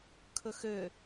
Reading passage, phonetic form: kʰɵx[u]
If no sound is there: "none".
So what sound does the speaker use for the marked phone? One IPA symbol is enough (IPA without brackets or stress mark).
ø